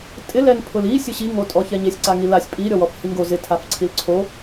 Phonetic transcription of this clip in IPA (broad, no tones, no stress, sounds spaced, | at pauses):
tʼ ɪ l ɛ n pʰ ʊ l i sʲ ʊ ɕ i ŋ o tʼ ɔ ç ɛ ɲ e sʲ ǀ a ŋ i l a sʲ pʼ i ɾʲ ɔ w ɔ f h i ŋ ɡ o z ɪ tʰ a f ǀʰ i l ǀʰ o